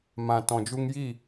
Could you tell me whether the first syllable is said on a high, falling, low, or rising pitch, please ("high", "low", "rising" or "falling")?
low